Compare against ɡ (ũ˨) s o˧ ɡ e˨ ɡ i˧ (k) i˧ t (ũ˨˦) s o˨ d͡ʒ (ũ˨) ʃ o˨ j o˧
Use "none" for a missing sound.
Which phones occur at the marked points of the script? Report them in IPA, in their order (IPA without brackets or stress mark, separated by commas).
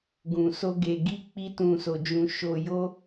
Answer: ũ˨, k͡p, ũ˨, ũ˨